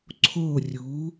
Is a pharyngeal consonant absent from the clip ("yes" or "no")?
yes